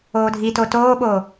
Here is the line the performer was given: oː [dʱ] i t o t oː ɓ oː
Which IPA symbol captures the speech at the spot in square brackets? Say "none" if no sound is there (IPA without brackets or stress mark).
dʱ